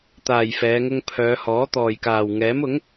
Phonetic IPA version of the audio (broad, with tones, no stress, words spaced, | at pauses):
t̪aː˨jfɛː˨˧ŋʊ˧ŋpʰœː˨˧ hɔː˨˥t̪ɔː˨jkaː˨w ŋɛː˨˥mʊ˨˥ŋ